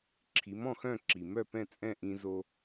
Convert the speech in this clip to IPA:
ǁʰ i˩˥ m ɔ̃˥˩ x œ̃˥˩ ǁ i˩ m œ˥˩ p ɛ̃˥˩ t͡sʼ ɛ̃˥˩ ʔ ĩ˧ z o˧

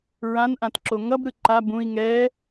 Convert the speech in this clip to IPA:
ɹ ã n ʔ ã t ǁ o ŋ ʌ b ɾ ɯ ǃ a b ũ i̯ ŋ ɛ

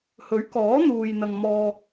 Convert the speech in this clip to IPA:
h ɵ˨˥ ɥ k ɔː˨˥ n̪ uː˨ j n̪ ɐ˨ ŋ m ɔː˧

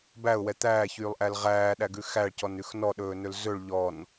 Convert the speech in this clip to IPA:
b æ ʊ̯ w ɛ t̪ æː ç yː lˠ ʔ æ l ʁ æː ɗ æ ɡ ʉ x æ ɭ c ɔ n ʉ x n ɔ ɗ ɵː n ɵ l z ɵ ɭ ʎ ɔ n

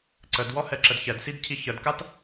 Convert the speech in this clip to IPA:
ǀ ə d w ɔ h ɛ ǁ ə d ç ɛ d s i d cʰ i ç ə d k a t

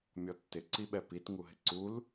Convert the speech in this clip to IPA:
mʲ ɔ tː ɪ ǀ i ɓ ɛ p i t ŋ u ɦ ɪ ǀ u l

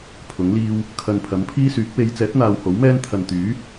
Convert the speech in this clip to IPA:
pʰ ʊ˨˥ ŋ l iː˥ w | kʰ ɐ˨ n pʰ ɐ˨˥ m pʰ iː˥ s yː˨˥ k̚ w e˨˧ j t͡s ɛː˨˥ t̚ n̪ aː˨ w h o˨˥ w m ɛː˥ n t̪ʰ ɐ˨ n t̪ yː˨˥

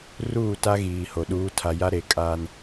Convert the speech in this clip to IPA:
r uː˦˨ t a˦ ɣ iː˨ h o˨ ɗ uː˨˦ tʰ a˨ j a˦ ɾ e˨ kʼ aː˦ n

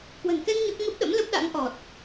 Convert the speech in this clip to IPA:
k w ə̤˨˩ n k ɛ˧ ŋ ɲ o˦˥ k̚ ŋ ə˦˥ p̚ ɗ ə̰˧˥ m l ə˦˥ p̚ ɗ a̰˧˥ ŋ ʔ ɔ˨˩ t̚

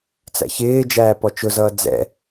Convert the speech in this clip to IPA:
t͡s æ̰ ç ɪː d͡ʒ æː p ɔ t͡ʃ ʊ z ʌː d͡z ɛ̰

